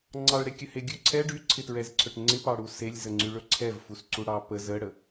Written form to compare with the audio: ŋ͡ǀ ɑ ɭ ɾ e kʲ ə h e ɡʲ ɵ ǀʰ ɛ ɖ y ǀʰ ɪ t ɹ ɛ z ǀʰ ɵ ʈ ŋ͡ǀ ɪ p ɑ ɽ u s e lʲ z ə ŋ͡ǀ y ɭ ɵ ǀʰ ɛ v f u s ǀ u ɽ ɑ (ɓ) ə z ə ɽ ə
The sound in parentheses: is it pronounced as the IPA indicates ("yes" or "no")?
no